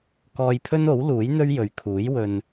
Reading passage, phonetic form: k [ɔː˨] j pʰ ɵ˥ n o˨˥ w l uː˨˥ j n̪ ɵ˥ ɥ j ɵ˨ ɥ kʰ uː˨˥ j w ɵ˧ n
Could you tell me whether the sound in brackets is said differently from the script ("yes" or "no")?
yes